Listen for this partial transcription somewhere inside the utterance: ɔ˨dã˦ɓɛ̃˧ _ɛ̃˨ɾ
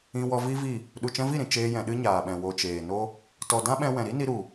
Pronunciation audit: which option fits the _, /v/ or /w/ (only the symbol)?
w